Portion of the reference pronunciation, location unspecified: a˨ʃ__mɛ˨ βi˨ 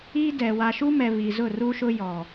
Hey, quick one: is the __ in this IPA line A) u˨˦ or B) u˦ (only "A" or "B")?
B